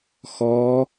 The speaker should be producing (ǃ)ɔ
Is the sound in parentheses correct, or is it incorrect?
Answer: incorrect